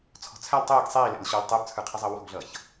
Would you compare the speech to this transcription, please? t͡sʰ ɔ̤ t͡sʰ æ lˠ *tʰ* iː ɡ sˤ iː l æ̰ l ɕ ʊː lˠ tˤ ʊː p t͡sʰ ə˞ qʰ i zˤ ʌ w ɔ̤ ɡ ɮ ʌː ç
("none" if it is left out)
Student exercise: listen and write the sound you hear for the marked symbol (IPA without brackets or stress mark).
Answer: tˤ